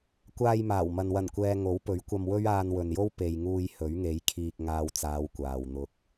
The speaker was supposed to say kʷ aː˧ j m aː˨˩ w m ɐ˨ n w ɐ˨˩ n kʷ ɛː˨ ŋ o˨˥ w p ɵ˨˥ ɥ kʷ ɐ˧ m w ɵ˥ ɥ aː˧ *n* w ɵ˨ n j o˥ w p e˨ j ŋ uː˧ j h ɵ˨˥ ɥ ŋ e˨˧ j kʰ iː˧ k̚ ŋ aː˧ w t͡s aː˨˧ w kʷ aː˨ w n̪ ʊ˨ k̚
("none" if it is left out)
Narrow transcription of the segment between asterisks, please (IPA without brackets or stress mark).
n